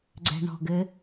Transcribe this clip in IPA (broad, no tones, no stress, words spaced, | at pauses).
ɡ͡ǀɛ̤ɳɔ̤ɡɘ